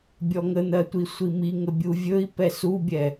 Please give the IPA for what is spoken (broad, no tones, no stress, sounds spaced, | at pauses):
bʲ ɔ ŋ ə n̪ ɜ tʷ i sʷ i m i ŋ ə bʲ u vʲ ɵ i̯ p ɛ s u bʲ ɛ